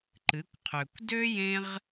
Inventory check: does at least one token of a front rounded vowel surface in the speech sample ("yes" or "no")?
yes